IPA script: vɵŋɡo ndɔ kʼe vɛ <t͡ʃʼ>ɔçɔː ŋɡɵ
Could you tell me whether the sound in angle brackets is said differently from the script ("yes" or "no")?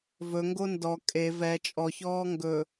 no